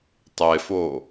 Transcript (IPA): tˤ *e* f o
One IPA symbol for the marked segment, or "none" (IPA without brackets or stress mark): e